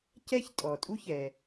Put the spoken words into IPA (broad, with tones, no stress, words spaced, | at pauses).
cɛ˥çtʼɔ˩tʼu˥ç ɛ˩